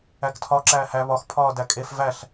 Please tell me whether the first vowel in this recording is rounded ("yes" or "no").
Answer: no